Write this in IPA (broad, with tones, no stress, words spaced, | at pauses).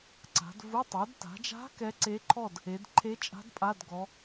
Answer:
ǀa̤˩˧dvu˧˥˧ tˤo˩˧dta̤˩˧d͡ʒa̤˧˥ kɛ˧˥ǀe˧˥ǃʰɔ˥˨d | e˩˧dǃʰe˧˥t͡ʃʼa̤˧˥d pʼa˧˥˧dɡɔ˩˧